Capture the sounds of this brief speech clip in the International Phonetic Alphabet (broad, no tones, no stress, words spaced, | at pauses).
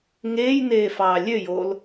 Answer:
ŋeːjneː fɑːlʲøjoːl